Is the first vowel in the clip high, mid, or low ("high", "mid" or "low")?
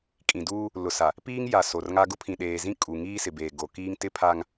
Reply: high